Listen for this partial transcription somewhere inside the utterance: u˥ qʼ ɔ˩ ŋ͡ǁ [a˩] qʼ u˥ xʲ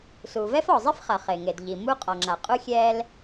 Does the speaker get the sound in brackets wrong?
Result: no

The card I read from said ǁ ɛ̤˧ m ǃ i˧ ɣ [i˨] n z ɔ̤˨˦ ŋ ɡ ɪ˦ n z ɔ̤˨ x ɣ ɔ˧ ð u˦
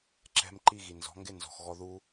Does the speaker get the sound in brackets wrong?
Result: no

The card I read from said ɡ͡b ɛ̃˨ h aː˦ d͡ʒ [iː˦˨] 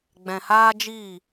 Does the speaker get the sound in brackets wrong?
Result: no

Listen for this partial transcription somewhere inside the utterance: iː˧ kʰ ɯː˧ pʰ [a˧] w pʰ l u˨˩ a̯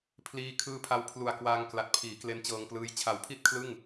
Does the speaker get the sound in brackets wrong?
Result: no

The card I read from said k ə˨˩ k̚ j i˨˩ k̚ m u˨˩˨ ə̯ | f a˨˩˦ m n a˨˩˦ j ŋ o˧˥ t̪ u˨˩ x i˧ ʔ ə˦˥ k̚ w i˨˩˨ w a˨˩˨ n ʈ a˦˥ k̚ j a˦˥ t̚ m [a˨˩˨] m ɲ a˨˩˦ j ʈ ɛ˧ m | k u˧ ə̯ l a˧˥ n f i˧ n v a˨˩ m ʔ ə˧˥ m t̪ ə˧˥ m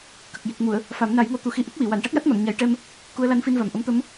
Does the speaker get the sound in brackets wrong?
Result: no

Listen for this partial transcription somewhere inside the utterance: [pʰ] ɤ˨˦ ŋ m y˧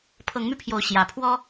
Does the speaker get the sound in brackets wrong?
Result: no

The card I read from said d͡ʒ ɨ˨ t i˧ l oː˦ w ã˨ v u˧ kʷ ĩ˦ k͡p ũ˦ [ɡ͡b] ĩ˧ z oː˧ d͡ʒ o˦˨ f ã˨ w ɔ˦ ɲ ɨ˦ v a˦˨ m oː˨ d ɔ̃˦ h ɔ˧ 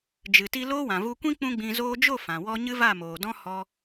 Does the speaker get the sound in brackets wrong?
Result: no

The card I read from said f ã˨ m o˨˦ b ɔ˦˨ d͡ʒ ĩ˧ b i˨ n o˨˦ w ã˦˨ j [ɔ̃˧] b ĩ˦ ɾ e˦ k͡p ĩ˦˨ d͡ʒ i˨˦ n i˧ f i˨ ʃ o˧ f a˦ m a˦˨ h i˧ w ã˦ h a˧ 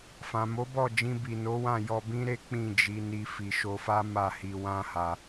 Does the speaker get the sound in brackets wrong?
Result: yes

